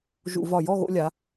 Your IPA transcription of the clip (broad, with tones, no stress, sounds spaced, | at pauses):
ʒ ṵ˧˩˧ v ɒ˧˩ j ɔ˥˨ ɣ o̰˧ lʲ a˩˧